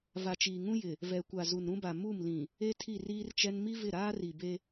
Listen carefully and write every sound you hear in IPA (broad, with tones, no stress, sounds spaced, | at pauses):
v a˨ t͡ʃ iː˨ ŋ ũ˦ j ɪ˨ | v ɛ˨ kʷ a˨ z u˨ n ɾ ũ˦ b a˨ m u˦˨ m l ĩ˨ | e˦ tʰ i˦˨ r iː˦ r t͡ʃ ɛ˦ n m i˦ v ɪ˦˨ ɾ aː˦ r i˨ b e˦